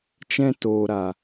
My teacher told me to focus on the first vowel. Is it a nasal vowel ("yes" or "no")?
yes